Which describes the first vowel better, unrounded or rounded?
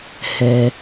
unrounded